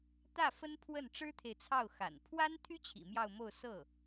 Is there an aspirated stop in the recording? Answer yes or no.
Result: yes